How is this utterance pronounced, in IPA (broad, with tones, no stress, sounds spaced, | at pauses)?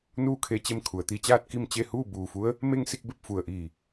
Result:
n uː˥˨ kʰ e˧˥ t͡ɕ e˧˥ m kʰ u˩ ə̯ t̪ i˧ t͡ɕ aː˥˨ t̚ k i˥˨ m t͡ɕ e˥˨ h uː˥˨ b uː˧˩ f u˧˥ ə̯ | m e˥˨ ŋ s i˥˨ k̚ b e˥˨ p̚ f u˧˩ ə̯ ʔ iː˧˩